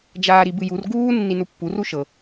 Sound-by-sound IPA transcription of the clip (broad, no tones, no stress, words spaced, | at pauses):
d͡ʒaːɾibɨjur ɡuː nːinupːu ruʃɤ